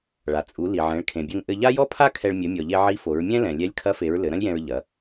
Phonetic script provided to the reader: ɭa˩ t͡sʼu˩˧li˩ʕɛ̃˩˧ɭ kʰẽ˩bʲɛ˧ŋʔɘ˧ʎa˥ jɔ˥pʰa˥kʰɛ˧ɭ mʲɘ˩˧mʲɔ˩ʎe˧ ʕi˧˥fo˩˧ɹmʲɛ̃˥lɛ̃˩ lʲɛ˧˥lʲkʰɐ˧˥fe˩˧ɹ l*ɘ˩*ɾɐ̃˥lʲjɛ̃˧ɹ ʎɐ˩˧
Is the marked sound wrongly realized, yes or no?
yes